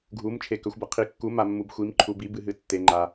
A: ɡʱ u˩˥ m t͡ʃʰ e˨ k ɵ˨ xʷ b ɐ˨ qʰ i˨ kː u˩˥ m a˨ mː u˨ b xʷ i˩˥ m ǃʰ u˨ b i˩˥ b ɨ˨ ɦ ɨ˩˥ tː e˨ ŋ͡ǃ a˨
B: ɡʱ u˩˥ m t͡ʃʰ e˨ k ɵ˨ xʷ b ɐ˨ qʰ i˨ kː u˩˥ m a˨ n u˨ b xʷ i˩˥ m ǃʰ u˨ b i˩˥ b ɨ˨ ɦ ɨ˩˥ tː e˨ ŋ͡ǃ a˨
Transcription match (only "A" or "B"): A